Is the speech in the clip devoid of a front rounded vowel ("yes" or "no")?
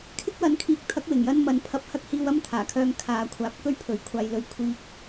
no